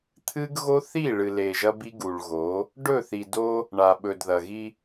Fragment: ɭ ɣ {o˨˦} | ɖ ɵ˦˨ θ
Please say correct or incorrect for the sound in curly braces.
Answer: correct